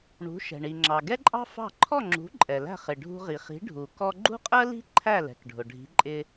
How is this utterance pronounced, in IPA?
ɳ ṳ˩˥ ʃ ɛ̤˩ ɳ i˩ ŋ͡ǁ ɑ˩ ɡ ɛ˥ ǃʼ ɑ̤˥ f ɑ̤˥˩ ǃʰ ɔ˥˩ ŋ͡ǁ ṳ˩˥ ǃʼ ɛ˩ l æ̤˥˩ χ ɪ˩ ɖʱ ṳ˧ ʁ i˩ χ i̤˩˥ ɖʱ u˩ k ɔ˧ ɡ͡ǃ ṳ˥ qʼ ɜ˥ l i̤˥ ǃʰ æ˥˩ l ɛ̤˩ k ɖʱ ʊ˩ ɖʱ i̤˩˥ ǃʼ ɪ˧

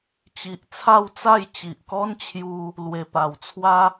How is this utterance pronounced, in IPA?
t͡ɕ i˨ ʔ t͡sʰ a˥˧ w t͡s a˥˧ j t͡ɕ i˨ ʔ k ɔ˦ n t͡ɕʰ j u˧ | l w e˨˩ p a˨˩ w t͡sʰ w a˦

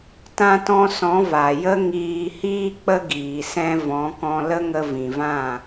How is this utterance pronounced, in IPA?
t ã˧ t ɔ̃˧ s ɔ̃˨˦ v a˨ j ə˦ ŋ iː˧ h iː˦ k͡p ə˦ ɡ iː˨ s ɛ̃˧ v ɔ̃˨˦ k ɔ̃˧ l ə˦ ŋ ə˧ v ĩ˨ v ã˦˨

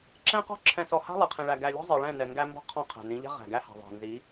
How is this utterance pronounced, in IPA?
ǁ ɛ̃˦ q ɔ̤˦ ǁʰ ɛ̃˨ s ɔ˨ h a̤˦ lˠ ɛ˨ qʰ ĩ˨ ɭ æ˨ ɡ æ˨ lʲ ɔ̤˦ zˤ i˨ ɭ ɛ̃˦˨ n ɛ˨ ŋ ɡ æ˦ m b ɔ̤˦ qʰ ɔ̃˦˨ qʰ æ̤˨ n ĩ˨˦ ʎ ɛ̤˦ ʁ æ̤˨ ɡ æ˦ h a̤˨ ðˤ æ̤˨ n z i˨˦

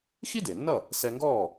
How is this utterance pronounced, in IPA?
x i˥ d e˩ nː ʌ˥˩ | s ɛ˧ ŋ ɡ ɔː˥˩

